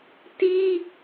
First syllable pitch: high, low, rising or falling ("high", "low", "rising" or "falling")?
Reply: high